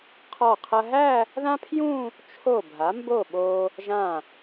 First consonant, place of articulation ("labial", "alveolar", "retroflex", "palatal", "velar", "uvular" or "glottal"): uvular